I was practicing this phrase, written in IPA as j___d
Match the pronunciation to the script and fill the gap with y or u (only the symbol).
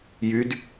y